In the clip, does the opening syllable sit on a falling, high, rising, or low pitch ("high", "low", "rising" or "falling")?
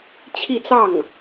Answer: falling